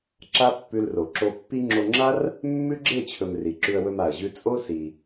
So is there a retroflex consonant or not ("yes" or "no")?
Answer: no